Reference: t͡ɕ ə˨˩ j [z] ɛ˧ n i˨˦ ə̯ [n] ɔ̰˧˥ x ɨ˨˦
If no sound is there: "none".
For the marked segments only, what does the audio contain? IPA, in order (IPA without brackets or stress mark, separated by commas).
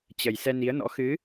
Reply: s, n